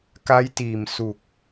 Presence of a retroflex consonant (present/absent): absent